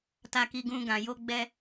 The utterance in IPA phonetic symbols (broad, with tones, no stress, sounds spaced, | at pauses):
t a˧ k i˧ ɡ ũ˧ ɡ ã˨ j o˧ ɡ͡b ɛ˧